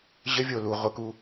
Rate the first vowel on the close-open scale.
mid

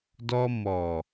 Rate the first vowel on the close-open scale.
mid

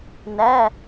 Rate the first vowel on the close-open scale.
open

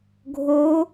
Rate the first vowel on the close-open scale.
mid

